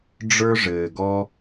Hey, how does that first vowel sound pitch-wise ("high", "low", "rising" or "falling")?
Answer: high